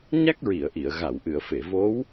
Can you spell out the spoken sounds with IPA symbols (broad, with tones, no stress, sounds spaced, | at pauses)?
ɲ a˦˥ k̚ ɹ i˨˩˨ ə̯ ʔ i˨˩˨ ə̯ ɣ a˨˩˨ w ʔ ɨ˨˩˨ ə̯ f e˨˩˨ v o˧˥ w